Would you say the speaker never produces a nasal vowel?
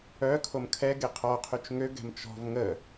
yes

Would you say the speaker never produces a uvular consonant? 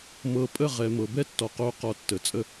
no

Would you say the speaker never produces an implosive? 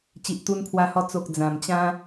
yes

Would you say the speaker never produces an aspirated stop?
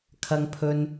no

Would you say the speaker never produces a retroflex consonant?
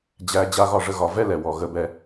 no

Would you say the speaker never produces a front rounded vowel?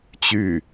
no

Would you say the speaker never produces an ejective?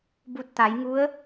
yes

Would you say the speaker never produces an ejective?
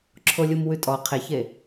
no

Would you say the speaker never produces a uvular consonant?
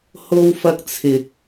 yes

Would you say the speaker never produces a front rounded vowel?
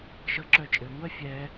no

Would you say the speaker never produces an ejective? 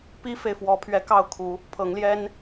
yes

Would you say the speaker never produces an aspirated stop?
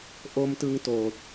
yes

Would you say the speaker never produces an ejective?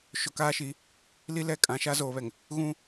no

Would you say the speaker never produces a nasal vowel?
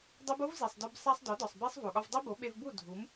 yes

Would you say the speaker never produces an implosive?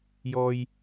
yes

